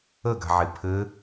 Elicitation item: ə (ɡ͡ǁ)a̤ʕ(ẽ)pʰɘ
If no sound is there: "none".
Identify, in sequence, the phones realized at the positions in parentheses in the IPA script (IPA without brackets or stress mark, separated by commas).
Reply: ɡ, e